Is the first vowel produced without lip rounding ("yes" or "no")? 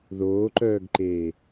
no